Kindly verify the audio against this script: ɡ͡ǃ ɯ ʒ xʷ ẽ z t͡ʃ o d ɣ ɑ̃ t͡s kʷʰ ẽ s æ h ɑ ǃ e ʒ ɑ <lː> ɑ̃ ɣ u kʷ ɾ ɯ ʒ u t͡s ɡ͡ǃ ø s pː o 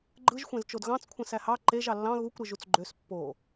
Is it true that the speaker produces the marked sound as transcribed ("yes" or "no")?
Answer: yes